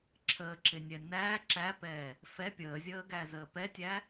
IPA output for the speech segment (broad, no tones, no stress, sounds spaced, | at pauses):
ǁʰ əː ǁ ɪ nʲ ɛ n æ ǁ æ p ɛː | f ɛ pʲ əː zʲ əː ɡ æ z əː p ɛ tʲ æ